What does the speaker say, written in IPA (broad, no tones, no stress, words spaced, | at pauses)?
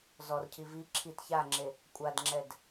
zɔr cʰivi ǁʰit çaŋ͡ǁe | kʷʼadŋ͡ǁɛd